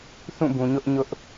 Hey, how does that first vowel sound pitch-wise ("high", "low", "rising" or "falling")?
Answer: falling